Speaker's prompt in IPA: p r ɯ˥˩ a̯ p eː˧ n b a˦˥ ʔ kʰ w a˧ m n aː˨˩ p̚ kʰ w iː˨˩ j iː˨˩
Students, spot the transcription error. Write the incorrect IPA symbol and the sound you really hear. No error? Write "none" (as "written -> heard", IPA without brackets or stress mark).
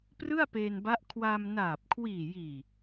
none